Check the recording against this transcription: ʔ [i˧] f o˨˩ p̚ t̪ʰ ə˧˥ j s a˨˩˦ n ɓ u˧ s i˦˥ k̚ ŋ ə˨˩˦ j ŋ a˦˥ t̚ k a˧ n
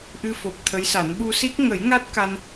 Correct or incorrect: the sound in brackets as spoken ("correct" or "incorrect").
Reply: incorrect